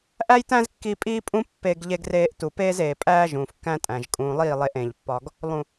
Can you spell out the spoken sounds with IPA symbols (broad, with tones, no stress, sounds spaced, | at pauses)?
ʔ æ˦ j t æ̃˦ z kː i˧ pʼ iː˦ pʼ ũ˦ pː e˧ ɡ ʎ e˧ ɡ r eː˧ ʔ t u˨ p eː˦ z eː˨ pʼ æː˦ ʒ ũː˨ f kː æ̃˦ tʼ æ̃˨ ʒ kʼ ũː˧ lˠ iː˦˨ lˠ e˧ ʔ ẽ˨ ʎ pː ɒ˧ ɡ | lˠ ũ˨